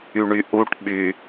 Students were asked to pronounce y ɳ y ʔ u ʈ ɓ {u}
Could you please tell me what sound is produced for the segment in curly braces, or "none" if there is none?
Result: y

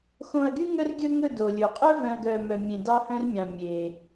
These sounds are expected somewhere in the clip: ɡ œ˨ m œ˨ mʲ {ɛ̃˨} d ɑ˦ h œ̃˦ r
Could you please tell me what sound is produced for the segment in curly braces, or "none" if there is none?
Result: ẽ˨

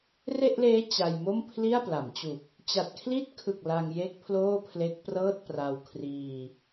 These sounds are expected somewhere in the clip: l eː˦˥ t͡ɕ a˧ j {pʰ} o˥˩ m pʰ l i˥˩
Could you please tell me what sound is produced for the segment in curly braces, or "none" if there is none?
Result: m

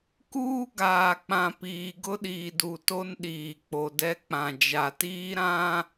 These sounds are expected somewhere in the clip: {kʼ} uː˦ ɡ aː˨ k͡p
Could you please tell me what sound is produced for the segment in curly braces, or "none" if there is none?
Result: k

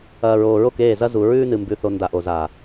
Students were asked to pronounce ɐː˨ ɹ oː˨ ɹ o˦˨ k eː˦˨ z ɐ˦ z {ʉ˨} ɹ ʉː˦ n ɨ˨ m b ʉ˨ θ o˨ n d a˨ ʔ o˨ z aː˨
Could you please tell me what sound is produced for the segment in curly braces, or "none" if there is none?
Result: u˨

